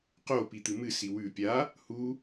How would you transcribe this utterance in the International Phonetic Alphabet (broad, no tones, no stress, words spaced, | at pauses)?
qopit̪ɨ mɨsi wʉ pʲa | hu